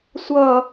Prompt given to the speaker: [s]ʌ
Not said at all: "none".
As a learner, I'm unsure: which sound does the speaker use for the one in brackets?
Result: sʷ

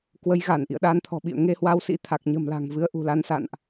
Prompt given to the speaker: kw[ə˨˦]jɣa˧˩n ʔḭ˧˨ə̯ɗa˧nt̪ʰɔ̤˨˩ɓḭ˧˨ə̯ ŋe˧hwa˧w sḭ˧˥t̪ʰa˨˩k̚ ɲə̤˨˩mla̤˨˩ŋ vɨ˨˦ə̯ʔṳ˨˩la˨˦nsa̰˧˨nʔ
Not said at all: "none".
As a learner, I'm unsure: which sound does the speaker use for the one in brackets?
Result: ə˨˦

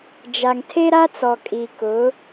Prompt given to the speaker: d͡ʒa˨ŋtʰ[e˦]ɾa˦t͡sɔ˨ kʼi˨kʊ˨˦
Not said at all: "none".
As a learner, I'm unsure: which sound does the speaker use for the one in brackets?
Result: e˦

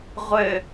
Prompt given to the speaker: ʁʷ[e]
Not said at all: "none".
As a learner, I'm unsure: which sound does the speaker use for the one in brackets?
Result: ɘ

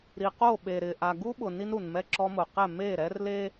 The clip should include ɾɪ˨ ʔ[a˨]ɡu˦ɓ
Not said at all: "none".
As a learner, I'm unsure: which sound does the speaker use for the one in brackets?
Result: a˨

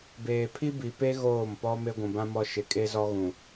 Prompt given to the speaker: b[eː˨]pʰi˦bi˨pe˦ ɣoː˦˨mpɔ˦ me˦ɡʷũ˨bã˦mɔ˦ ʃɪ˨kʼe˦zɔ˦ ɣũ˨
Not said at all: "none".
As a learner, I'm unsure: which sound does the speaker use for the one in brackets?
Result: eː˨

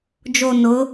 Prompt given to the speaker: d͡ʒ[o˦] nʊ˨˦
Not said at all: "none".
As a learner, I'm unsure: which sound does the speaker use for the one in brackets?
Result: o˨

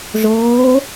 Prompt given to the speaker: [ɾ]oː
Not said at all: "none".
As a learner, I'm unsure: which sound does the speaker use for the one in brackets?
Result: ʐ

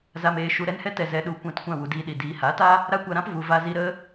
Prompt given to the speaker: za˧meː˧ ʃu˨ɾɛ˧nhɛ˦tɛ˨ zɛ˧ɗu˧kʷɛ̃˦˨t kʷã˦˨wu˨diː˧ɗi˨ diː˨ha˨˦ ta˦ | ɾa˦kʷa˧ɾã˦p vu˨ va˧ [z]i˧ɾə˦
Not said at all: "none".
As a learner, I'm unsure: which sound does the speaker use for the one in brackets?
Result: z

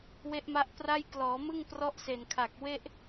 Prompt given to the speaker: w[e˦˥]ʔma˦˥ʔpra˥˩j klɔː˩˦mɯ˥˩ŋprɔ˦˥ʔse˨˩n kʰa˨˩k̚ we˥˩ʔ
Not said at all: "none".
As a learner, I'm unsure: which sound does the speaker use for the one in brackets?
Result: e˦˥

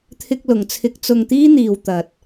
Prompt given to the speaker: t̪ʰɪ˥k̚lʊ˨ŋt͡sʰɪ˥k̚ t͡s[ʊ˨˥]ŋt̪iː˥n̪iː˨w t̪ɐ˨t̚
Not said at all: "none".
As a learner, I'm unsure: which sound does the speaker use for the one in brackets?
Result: ʊ˧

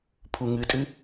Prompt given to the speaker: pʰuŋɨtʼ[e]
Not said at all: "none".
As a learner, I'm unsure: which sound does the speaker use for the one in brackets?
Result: ɨ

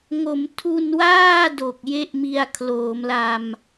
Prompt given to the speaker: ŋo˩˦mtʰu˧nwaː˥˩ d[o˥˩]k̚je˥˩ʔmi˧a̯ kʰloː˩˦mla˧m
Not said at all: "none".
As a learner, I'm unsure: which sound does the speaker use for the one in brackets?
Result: o˨˩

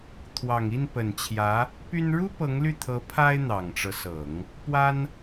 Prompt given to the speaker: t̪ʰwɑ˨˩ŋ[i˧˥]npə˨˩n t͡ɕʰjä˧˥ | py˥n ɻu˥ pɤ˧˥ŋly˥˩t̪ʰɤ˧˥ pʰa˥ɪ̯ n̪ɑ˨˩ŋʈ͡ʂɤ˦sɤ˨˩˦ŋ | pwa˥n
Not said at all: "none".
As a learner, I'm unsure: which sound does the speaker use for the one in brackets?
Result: i˥˩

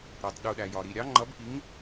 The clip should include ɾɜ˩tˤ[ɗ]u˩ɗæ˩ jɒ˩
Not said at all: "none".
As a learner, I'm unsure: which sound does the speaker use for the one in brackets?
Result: ɗ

